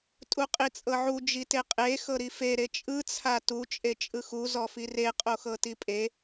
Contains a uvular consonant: yes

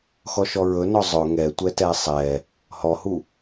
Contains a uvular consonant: no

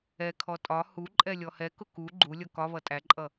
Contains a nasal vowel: no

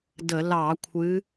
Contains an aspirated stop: yes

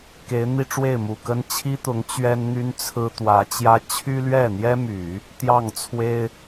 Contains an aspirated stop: yes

